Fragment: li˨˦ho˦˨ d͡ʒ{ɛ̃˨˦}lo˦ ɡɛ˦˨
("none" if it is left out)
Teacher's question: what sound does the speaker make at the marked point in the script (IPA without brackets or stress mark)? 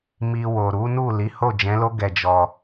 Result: ɛ̃˨˦